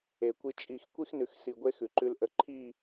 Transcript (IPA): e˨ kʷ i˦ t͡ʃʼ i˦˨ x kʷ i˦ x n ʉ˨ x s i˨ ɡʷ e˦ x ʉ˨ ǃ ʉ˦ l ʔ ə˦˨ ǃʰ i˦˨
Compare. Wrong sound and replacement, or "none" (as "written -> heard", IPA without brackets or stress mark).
ə˦˨ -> ə˦